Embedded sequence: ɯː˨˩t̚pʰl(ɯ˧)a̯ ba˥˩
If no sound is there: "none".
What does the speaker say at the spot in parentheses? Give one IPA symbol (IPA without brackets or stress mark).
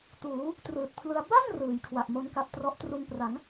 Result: ɯ˧